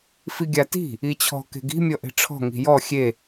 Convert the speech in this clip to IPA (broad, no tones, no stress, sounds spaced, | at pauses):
f i ɡʲ a t i̤ | i t͡ɕʰ ɔ̤ k e̤ ɡ i̤ mʲ ɔ ʔ e̤ ʈ͡ʂʰ ɔ̤ ŋ i̤ j ɔ xʲ e